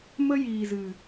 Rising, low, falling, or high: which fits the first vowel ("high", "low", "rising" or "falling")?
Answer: high